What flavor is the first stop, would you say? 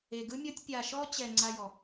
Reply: plain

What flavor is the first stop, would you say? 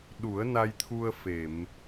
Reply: implosive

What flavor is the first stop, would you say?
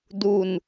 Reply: plain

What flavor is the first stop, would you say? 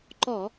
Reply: click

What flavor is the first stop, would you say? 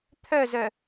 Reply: aspirated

